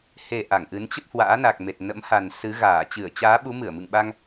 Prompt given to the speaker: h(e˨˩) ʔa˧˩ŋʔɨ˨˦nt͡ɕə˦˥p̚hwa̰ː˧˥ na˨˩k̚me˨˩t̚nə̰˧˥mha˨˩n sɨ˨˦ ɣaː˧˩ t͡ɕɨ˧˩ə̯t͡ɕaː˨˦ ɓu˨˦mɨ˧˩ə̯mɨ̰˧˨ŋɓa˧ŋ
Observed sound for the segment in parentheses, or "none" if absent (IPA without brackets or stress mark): e˨˩